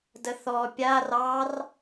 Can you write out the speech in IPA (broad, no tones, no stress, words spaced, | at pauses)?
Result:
dəθɔ pʲar ɑr